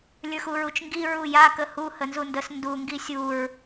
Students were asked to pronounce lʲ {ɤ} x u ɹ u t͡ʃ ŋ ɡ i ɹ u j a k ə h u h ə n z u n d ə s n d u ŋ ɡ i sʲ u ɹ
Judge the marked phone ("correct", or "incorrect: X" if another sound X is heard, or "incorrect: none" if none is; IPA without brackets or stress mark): incorrect: ə˞